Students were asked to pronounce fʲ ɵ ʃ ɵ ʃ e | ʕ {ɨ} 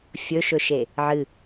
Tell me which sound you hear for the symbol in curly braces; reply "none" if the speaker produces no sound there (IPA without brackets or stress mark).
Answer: ɨ